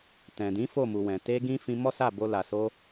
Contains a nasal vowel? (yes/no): yes